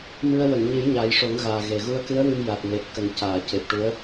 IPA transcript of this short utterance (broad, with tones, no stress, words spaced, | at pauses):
mɨ˧ə̯ wə˨˩˨ŋɲɨ˨˩˦j ɲa˨˩˦jʂo˨˩˦ŋɣaː˨˩ ɣe˨˩ ɣu˧ə̯kɨ˧˥ə̯wɨ˧m ja˨˩t̚ŋe˨˩t̚ kə˨˩˦ŋcaː˨˩˨ce˨˩p̚ʈu˧˥ə̯